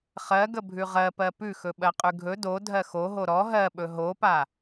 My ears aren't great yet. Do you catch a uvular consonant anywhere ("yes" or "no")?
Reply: yes